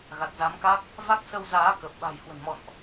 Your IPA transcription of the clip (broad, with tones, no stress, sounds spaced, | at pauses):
ɣ a˨˩ t̚ z a˨˦ m k a˦˥ k̚ | v a˦˥ k̚ s ə˧ w z aː˨˦ k ə˨˩ p̚ ɓ a̤˨˩ j h w ə̤˨˩ n m ɔ̰˧˨ n ʔ